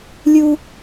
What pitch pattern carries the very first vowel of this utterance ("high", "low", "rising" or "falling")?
high